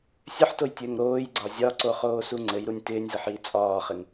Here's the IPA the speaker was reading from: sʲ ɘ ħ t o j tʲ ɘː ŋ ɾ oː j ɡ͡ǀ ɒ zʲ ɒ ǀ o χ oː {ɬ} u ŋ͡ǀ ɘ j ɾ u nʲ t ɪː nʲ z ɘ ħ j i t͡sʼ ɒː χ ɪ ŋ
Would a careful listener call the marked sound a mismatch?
yes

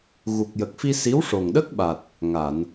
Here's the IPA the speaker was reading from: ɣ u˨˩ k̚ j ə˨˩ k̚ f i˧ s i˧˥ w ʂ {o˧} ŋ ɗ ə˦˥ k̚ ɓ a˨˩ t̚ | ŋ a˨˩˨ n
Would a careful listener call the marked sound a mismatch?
yes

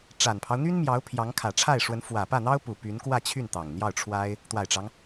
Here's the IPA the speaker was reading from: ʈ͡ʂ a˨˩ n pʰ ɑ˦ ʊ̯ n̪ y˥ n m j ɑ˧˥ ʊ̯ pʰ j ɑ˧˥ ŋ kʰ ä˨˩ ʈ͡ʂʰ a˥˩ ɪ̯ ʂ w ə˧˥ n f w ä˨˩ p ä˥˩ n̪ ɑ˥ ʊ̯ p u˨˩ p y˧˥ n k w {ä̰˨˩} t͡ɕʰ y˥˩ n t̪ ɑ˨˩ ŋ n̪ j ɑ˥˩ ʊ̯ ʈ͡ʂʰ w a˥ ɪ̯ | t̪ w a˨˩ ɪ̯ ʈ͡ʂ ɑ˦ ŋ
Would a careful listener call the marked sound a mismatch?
yes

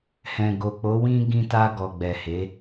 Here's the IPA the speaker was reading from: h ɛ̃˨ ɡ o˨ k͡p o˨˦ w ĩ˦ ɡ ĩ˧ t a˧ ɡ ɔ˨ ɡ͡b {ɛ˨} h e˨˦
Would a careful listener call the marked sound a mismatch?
no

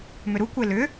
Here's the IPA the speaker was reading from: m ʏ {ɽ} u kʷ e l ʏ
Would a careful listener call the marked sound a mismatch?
yes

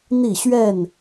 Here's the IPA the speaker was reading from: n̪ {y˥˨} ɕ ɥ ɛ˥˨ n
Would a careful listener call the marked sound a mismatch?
yes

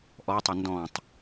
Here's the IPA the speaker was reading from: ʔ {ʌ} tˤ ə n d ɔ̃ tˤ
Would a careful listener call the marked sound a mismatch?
yes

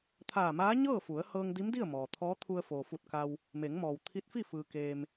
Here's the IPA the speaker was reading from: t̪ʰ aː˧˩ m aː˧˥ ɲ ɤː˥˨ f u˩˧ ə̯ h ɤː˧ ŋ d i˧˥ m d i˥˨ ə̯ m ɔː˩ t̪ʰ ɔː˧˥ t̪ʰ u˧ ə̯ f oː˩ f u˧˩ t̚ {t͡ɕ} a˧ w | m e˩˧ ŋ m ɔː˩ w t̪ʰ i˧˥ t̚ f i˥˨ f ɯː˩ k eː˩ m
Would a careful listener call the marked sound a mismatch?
yes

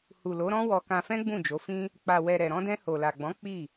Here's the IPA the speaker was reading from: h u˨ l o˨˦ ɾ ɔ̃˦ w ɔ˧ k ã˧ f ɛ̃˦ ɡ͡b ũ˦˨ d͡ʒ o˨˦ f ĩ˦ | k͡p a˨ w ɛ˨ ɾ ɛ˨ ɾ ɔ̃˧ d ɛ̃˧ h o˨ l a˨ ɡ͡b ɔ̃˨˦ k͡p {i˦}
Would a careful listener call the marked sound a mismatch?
yes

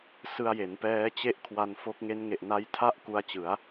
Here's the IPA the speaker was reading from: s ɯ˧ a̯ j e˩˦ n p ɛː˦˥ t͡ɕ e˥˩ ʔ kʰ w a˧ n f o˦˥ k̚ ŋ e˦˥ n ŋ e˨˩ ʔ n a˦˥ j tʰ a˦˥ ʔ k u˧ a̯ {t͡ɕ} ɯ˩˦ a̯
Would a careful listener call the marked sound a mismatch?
no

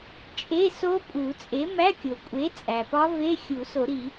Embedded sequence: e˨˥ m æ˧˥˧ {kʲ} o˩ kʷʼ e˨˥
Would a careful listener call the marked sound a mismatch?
no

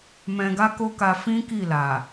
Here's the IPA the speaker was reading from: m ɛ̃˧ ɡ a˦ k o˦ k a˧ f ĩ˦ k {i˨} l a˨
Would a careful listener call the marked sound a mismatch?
yes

